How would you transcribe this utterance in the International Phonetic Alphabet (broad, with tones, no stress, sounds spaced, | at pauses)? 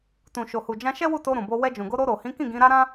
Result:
t ũ˨ ʃ o˨ h u˨ d͡ʒ ã˧ ʃ ɛ˦ w u˦˨ t o˧ ɾ ũ˨ b o˧ w ɛ˧ d͡ʒ ũ˨ ɡ o˧ ɾ o˧ ɾ o˨ h ĩ˨˦ k ĩ˦˨ ɡ ĩ˨˦ ɾ a˦ ɾ ã˦